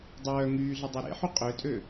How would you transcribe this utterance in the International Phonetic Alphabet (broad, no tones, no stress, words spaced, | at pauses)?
dˤœː ŋyːɮə dˤœɾḛħy qʼøtʼø